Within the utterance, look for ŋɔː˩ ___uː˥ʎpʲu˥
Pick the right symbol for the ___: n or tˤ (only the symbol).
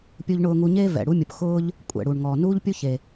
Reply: n